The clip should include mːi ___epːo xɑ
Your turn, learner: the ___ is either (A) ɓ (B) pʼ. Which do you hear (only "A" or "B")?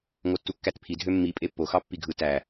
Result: B